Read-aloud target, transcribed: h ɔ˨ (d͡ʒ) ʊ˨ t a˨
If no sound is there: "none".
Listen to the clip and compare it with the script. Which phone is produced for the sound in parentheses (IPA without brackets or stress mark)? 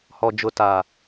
d͡ʒ